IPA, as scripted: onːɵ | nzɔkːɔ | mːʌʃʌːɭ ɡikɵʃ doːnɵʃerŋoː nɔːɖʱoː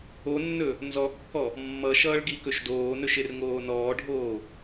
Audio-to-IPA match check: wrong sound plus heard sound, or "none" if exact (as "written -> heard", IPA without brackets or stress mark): none